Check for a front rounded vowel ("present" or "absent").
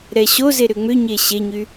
present